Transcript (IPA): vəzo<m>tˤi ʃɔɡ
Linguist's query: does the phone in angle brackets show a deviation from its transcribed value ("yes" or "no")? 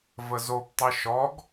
yes